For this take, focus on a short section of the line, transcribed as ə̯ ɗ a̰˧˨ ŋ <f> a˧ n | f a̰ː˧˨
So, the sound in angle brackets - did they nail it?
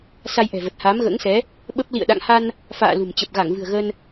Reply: no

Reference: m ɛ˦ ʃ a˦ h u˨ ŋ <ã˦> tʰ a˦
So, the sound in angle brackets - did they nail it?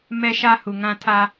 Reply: yes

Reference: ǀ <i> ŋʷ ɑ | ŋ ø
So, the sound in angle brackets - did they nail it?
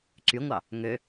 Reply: no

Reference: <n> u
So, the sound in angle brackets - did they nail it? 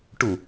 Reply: no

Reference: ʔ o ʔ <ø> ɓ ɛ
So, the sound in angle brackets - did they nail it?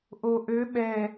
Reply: yes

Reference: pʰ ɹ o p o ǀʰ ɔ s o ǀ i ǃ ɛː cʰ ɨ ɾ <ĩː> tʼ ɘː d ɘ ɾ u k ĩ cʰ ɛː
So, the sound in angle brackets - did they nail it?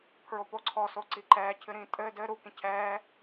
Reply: yes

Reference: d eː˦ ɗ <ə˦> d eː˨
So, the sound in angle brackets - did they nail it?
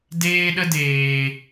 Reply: yes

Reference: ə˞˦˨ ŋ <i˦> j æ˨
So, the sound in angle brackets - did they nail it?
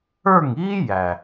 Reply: no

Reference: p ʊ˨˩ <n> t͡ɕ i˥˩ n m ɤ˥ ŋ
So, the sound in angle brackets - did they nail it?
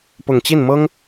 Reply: no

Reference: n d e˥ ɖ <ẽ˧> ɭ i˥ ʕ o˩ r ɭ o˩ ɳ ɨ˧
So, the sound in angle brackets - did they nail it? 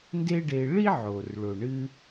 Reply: no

